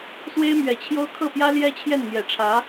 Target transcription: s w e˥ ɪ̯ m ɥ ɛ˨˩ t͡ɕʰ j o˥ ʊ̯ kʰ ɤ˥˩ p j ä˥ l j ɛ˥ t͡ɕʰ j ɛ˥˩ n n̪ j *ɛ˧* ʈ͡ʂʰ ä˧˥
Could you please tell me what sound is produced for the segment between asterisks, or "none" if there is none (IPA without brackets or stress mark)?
ɛ˨˩